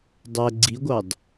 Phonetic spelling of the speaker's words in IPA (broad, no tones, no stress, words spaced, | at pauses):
dˤɛ ɡ͡ǀiɡʷɑd